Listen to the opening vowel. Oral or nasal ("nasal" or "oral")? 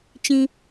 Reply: nasal